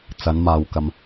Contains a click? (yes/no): no